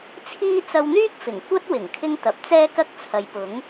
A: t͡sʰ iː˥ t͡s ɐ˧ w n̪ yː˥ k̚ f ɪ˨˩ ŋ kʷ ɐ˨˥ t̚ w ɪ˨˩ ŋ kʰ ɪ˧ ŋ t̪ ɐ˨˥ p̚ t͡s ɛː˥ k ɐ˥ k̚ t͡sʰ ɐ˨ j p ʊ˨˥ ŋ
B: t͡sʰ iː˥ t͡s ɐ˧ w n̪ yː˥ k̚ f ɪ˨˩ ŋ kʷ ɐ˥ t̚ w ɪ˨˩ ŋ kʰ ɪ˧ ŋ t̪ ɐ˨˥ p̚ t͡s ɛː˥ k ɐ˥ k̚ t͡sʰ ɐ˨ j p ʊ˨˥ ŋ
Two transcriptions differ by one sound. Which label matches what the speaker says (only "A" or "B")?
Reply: B